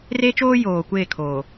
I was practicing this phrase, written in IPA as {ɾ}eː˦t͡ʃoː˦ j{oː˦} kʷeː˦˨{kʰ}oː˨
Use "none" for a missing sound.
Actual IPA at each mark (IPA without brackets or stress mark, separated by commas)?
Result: r, oː˨, kʰ